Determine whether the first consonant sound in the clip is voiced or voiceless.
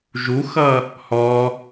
voiced